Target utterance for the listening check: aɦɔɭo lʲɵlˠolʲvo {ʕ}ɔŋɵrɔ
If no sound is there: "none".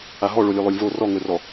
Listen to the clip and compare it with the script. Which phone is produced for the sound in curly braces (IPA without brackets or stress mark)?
r